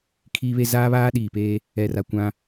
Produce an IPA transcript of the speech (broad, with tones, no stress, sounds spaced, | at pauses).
kʰ iː˦ β e˦ z aː˦ β aː˦ ɗ iː˨ p eː˦ | ɛ˨ r a˨ kʷ ã˦